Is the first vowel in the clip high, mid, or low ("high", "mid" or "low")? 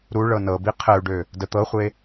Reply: high